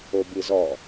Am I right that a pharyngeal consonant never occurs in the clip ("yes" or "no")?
yes